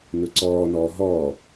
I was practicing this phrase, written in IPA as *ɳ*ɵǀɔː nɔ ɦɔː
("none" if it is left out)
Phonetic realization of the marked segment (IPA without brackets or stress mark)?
n